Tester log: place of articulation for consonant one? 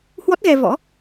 glottal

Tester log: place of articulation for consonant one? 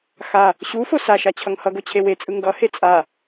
velar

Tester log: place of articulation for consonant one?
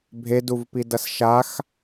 labial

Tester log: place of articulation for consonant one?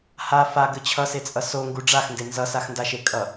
glottal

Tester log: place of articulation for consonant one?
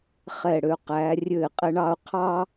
uvular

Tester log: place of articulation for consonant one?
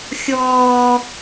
velar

